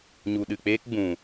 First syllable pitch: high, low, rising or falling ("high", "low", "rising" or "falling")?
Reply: low